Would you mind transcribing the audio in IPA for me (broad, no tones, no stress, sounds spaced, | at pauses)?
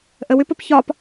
ʔ ə w ʏ p ə p ç ɒ p